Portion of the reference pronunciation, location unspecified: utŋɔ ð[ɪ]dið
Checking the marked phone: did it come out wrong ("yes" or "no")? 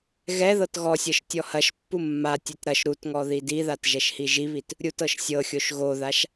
yes